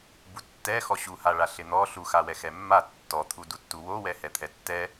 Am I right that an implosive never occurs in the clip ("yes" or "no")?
yes